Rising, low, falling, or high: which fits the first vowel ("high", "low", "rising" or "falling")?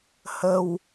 low